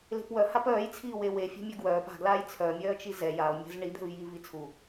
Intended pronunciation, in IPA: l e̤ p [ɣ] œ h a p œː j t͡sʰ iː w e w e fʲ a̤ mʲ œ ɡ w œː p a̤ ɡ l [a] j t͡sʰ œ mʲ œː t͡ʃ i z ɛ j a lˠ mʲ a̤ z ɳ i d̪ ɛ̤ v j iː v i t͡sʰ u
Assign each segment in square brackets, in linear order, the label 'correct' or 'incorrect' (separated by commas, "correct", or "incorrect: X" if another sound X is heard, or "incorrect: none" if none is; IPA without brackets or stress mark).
incorrect: w, incorrect: aː